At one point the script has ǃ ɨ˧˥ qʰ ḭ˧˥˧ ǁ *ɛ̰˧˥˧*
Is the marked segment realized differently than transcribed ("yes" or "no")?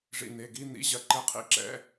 no